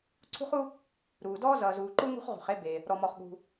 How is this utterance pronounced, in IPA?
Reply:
ǀʰ ṳ˥ χ u˥ | ɾ uː˩ d ɔː˥ z ʌː˩ z uː˩ ǃ uː˥ ŋ ṳ˥ χ ʁ ṳ˩ χ e˥ b e˩ | ɾ ɔ˩ m ɔ˩ χ ɠ ṳ˩

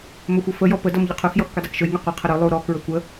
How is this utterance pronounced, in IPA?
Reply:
m ɵ xʷ ʌ f ə j ɔ p ə d ʌ m ʎ ʌ qʰ u x j ɔ x kʷ ɛ dˤ æ k ʃ ɵ j ŋ ɛ qʷ ʌ qʰ ə ɾ ɵ lˠ u ɾ ɔ k ɹ ɵ kʷ ə

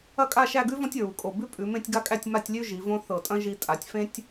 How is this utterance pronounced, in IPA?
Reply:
ɐ˥˧ kʼ a˥˧ ʃ æ˥˧ ɡ ʉ˥ v ɔ̃˥ tʲ ɹ u˩˧ kʼ o˧˩ b ʉ˥ pʼ ʉ˩˧ m ẽ˥˧ tʲ ɡ a˥ kʼ æ˥˧ tʲ m a˥˧ tʲ lʲ ʉ˥ ʒ i˩˧ v õ˥ θ ɤ˧˩ tʼ ɐ̃˥ ʒ i˧ tʼ a˩˧ tʲ f ẽ˥ tʲ

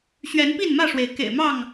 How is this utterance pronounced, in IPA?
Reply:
ɕ ɥ ɛ˨˦ n p i˥˨ n m ä˥˨ ʂ w e˩ ɪ̯ k ḛ˨˩ ɪ̯ m ɑ˥˨ ŋ

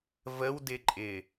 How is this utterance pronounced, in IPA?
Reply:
v ə w d ɪ ǃʼ ɪ

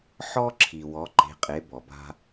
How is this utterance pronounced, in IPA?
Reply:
ħ ɔ˥ ǁʰ i˩ w ɔ˩˧ ǃ e̤˩˧ qʼ e˩˧ b ɔ˩ b a̤˧

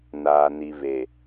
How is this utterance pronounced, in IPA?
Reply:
n aː˨ n i˨ β e˨

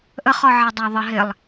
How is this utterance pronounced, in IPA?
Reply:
ʔ ə χ ɔ ʕ ɛ dˤ æ ðˤ ə ɦ ɪ lˠ

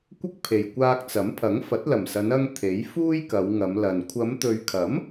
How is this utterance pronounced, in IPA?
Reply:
kʷ ɪ˥ k̚ pʰ e˨ j kʷ aː˧ k̚ t͡s ɐ˨˥ m pʰ ɐ˨˥ ŋ f ɐ˨˥ t̚ l ɐ˨˩ m s ɐ˨˧ n ɐ˧ ŋ t̪ʰ e˨˥ j f uː˥ j k ɐ˨˧ w ŋ ɐ˨˧ m l ɐ˨ n kʷʰ ɐ˨˧ m t̪ ɵ˨ ɥ kʰ ɐ˨˥ m

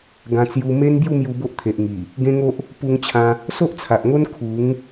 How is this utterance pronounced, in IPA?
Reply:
ɡ ã˦ t͡s j u˦ m e˦ n b j u˥˧ m j u˧ b o˦ ʔ t̪ʰ e˨ ʔ ŋ i˨˩ | ɡ ẽ˦ ŋ o˦ ʔ | p u˧ ŋ t͡ɕʰ ã˧ | s o˦ ʔ t͡sʰ a˨ ʔ ŋ o˦ n kʰ u˨˦ ŋ

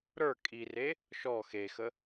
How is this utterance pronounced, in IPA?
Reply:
ɾ ə˞ kʼ i r e | ʃ ɔ x e x ə

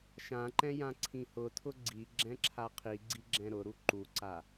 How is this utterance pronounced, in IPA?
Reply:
ʃ ã ǃ ɛ̃ j ã ǀʰ ĩ h ʊ tʰ ʊ ɡ͡ǀ i ɡ͡ǁ ɛ̃ ǁʰ a qʰ i ɡ͡ǀ i ɡ͡ǁ ɛ̃ ɾ ʊ ɾ u ǃ u ǀ a

